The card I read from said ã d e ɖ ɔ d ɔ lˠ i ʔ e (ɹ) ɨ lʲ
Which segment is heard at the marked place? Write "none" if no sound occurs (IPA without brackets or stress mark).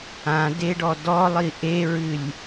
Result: ɹ